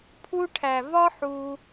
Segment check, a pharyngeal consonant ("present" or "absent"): present